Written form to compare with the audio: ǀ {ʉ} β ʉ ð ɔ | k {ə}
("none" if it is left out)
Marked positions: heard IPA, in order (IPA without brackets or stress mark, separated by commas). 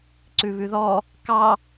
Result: ʉ, ɑ